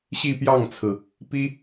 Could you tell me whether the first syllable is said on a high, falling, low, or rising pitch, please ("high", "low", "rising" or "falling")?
falling